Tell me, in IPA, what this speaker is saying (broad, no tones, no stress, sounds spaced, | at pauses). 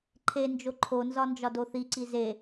ǃʰ e n d͡ʒ o ǃʰ o n z ɒ n d͡ʒ ɒ d o θ i ǀ i z e